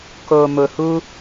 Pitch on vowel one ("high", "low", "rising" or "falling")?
low